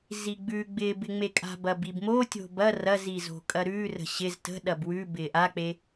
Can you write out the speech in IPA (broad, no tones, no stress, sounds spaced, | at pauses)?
z i ɡ͡b ʉ ɡ͡b ɪː b ɪ ŋ͡m e kʼ a̤ b ɐ b i b m o tʲ o̤ b ɐ r ɐ z i z o̤ kʼ ɐ ɾ ʉː r ə̤ ɕ ɪ z t ə̤ ɗ ɐ b w ʉ b ɪː ʔ a k͡p e